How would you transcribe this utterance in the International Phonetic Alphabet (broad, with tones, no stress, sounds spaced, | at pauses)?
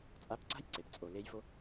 t͡sʼ a˧˥ p ǀ a̤˥ j ǀ e˩ p t͡sʼ o˩ l e˧˥ j f o˧˥